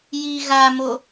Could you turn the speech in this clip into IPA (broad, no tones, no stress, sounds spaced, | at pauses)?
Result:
j i ɣ a m o